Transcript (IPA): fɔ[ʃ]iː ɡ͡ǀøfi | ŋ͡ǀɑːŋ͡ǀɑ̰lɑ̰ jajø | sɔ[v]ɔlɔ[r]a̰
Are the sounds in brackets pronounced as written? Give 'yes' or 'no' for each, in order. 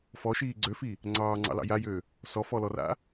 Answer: yes, no, yes

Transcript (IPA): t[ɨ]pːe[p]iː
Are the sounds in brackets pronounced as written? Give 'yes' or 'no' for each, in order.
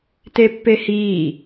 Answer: no, no

